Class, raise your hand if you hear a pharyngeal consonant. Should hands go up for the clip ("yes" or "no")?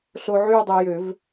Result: yes